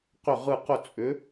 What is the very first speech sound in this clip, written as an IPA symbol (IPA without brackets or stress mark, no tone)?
q